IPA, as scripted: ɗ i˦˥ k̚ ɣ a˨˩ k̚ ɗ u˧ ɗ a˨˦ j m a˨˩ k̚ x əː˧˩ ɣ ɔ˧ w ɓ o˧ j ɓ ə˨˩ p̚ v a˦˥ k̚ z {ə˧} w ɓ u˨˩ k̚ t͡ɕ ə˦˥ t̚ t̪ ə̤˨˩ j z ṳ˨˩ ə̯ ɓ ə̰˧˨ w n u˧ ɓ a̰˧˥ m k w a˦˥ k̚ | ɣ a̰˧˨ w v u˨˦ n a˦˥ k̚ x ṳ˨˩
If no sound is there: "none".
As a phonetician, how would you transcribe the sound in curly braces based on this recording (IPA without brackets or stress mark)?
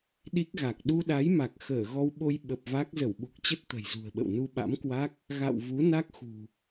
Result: ə˧˩